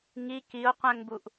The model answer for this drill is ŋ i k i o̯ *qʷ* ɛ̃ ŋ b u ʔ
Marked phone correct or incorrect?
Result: correct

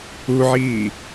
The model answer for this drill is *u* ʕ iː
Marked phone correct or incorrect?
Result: correct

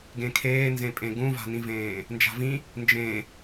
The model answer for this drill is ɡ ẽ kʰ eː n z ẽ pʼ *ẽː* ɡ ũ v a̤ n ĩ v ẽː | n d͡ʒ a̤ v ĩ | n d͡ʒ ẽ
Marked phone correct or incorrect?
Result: incorrect: ẽ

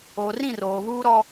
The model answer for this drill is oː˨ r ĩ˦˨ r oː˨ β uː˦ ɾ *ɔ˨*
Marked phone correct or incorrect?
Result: incorrect: ɔ˦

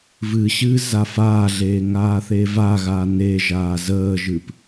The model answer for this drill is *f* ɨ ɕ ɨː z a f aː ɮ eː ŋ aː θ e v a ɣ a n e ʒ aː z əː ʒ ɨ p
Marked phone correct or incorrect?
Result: incorrect: v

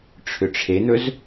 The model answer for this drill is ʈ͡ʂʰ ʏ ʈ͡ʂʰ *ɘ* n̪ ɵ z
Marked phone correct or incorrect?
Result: incorrect: e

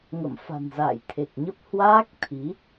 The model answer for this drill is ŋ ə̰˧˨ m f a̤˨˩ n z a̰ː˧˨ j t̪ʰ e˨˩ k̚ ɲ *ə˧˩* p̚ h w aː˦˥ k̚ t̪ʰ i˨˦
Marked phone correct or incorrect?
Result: incorrect: ə˦˥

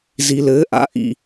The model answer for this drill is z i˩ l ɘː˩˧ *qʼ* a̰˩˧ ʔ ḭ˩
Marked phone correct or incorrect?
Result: incorrect: ʔ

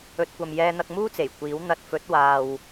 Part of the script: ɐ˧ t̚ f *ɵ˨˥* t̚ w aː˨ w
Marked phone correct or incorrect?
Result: correct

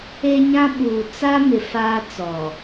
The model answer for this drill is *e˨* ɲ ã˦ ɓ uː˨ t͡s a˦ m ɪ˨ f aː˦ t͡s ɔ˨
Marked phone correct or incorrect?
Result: incorrect: e˦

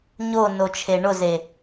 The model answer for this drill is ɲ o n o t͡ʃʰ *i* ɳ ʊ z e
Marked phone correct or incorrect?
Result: incorrect: e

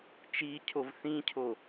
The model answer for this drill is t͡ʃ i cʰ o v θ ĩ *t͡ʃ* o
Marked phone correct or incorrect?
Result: incorrect: cʰ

